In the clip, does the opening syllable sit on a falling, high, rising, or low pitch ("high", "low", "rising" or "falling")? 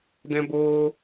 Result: high